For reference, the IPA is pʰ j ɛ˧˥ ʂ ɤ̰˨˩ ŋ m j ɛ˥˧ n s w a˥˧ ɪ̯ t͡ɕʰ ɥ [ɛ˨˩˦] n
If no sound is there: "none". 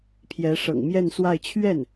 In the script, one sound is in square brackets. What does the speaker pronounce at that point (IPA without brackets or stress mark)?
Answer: ɛ˥˩